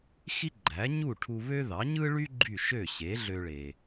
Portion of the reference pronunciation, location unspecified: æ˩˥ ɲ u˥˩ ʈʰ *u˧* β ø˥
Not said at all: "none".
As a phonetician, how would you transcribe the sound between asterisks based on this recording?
u˧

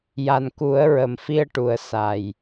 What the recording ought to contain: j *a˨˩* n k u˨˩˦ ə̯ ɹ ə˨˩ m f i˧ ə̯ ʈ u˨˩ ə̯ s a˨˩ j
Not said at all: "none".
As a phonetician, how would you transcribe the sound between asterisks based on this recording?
a˨˩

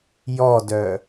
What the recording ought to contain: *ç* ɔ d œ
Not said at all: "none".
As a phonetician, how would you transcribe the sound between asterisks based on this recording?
j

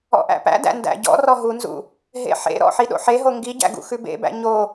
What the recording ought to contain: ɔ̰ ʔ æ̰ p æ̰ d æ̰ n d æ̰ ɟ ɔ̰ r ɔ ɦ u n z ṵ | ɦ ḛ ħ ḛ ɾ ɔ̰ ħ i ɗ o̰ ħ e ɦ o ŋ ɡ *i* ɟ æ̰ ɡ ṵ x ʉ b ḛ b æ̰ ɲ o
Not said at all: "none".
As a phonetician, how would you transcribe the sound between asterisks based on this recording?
i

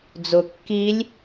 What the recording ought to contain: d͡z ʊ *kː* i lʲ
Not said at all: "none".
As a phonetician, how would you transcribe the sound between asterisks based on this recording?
kː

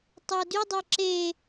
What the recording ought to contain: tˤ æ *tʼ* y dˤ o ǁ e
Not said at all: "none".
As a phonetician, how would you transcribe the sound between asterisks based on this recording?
d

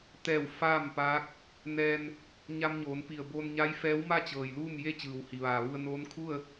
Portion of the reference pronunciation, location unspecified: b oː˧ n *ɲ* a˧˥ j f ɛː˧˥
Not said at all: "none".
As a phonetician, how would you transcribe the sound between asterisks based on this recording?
ɲ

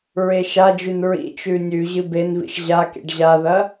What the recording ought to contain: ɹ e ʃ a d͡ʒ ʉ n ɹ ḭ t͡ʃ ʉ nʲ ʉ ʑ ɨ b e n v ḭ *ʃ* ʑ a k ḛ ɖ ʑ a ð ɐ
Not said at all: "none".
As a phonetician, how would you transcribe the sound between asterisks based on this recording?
ʃ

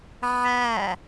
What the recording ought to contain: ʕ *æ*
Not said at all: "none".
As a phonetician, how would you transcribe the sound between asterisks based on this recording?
æ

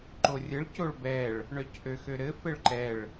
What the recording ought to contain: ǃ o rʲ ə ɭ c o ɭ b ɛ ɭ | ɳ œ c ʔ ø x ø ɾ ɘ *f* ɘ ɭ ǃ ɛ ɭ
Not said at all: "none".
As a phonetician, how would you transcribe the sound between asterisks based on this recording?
f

